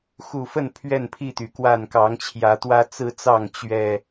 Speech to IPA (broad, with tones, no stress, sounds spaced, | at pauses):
x u˨˩ f ə˥˨ n pʰ ɥ ɛ˥˨ n pʰ i˥˨ t̪ y˩ k w a˥˨ n k ɑ˨˦ ŋ t͡ɕʰ j ä˨˦ t̪ w ä˦ t͡s ɹ̩˦ t͡s ɑ˥˨ ŋ t͡ɕ ɥ ɛ˨˩